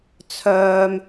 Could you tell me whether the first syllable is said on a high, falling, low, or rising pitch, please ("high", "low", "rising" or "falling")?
high